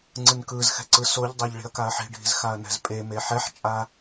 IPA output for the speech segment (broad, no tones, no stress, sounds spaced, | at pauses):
ŋ͡ǀ ɯ n k ɯ z x ɛ̤ ǀ ɯ s o ʎ dˤ ɛ ʎ ɭ i̤ ɐ̯ k a ɐ̯ ħ i̤ ɖʱ i̤ z x a ɐ̯ n ɛ̤ z pʼ e m e ħ ɛ ħ t͡ʃʼ a